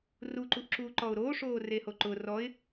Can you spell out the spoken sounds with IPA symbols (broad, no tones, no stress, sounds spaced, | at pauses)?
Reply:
r u ǃ u ʔ ǁ uː ǃ ɔ ʊ̯ ɾ oː ʂ oː r e h o ǃ ʊ r ɔ ɪ̯